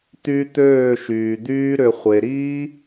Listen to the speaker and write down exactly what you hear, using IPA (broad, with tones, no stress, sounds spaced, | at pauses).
t̪ y˧ t̪ øː˦˨ ʃ yː˨ d̪ yː˦ ɾ ʏ˨ χʷ e˨ ɾ iː˦